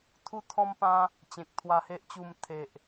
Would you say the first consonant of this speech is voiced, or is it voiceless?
voiceless